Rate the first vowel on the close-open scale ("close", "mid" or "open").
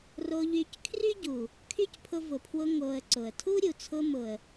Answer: mid